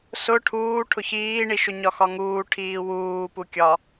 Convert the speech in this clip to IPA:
s ʊ ʈʰ uː ʈʰ ʊ ç iː ɳ i ʃ ʊ ɲ ɒ x ɒ ŋ uː ʈʰ iː w uː p u kʲ ɒ

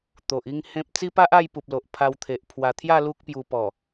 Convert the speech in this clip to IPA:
t̪ o˨ ʔ i˥˧ ŋ h ẽ˦ p̚ t͡s i˦ p a˦ ʔ a˥˧ j p u˨ p̚ l o˨ ʔ pʰ a˧ w t̪ʰ e˨ ʔ pʰ w a˧ t̪ʰ j a˥˧ l u˦ k̚ p j u˧ p ɔ˨˩

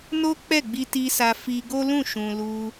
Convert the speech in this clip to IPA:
n o˦ k͡p ɛ˦˨ ɡ͡b i˧ t i˧ s a˧ f i˧ ɡ o˦ l ũ˦˨ ʃ ũ˨ l u˧

